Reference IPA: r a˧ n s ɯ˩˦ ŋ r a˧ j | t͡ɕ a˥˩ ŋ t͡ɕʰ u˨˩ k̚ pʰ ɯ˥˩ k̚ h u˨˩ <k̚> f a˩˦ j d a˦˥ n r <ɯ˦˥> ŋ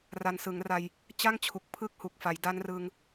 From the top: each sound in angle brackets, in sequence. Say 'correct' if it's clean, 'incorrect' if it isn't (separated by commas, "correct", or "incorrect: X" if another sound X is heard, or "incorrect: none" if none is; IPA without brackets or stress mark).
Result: correct, incorrect: ɯ˧